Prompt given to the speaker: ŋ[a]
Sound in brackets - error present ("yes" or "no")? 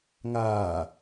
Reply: yes